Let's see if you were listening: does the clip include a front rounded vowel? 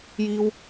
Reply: no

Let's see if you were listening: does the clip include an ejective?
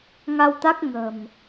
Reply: no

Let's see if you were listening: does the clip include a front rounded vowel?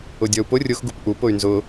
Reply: yes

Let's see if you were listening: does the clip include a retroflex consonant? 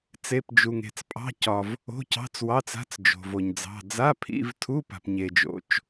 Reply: no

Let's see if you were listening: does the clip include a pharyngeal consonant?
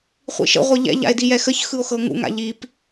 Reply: no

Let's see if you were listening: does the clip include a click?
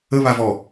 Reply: no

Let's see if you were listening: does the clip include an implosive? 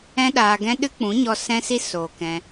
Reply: yes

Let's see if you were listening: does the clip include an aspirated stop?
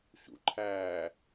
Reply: yes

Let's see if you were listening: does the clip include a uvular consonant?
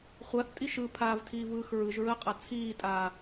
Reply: yes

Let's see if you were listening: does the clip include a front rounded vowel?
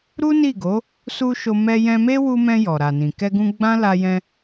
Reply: no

